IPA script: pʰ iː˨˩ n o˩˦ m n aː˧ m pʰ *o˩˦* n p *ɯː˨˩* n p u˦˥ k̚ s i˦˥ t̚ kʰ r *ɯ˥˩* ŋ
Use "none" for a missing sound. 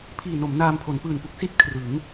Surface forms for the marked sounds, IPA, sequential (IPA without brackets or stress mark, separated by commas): o˩˦, ɯː˨˩, ɯ˩˦